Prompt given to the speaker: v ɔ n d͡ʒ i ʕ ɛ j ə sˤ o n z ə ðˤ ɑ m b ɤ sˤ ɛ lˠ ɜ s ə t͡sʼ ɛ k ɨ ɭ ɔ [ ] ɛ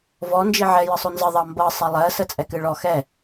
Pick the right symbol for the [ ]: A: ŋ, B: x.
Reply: B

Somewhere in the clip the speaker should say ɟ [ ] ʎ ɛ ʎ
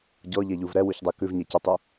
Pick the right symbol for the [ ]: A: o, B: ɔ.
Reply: B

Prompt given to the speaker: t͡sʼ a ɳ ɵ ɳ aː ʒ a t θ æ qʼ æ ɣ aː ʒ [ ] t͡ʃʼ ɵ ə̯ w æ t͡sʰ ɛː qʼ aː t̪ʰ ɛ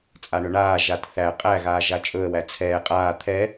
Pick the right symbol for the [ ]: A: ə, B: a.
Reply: B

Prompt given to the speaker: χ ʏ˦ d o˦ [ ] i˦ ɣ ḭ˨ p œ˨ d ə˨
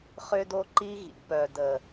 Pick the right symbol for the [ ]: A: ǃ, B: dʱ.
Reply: A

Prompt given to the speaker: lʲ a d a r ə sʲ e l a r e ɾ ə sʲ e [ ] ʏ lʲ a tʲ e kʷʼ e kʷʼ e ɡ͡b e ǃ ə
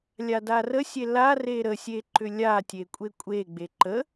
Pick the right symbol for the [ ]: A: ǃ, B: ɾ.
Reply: A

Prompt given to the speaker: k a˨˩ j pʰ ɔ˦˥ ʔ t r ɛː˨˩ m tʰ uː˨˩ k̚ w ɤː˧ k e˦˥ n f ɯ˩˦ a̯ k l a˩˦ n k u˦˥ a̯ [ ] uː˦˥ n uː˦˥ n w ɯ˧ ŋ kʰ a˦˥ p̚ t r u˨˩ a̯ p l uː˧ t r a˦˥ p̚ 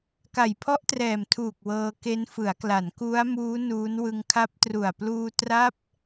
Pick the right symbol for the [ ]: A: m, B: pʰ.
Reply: A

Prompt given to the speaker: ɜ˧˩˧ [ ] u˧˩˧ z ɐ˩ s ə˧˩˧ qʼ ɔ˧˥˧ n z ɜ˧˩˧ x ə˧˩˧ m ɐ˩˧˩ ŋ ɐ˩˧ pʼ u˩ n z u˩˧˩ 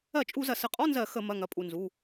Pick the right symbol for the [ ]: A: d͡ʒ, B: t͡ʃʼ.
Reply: B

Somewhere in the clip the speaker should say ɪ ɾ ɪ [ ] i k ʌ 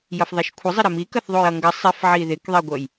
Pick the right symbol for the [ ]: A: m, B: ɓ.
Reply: A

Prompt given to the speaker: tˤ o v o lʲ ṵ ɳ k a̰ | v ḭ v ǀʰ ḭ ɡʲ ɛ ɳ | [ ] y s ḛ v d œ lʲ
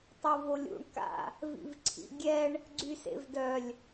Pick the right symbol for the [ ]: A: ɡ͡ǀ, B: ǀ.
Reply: A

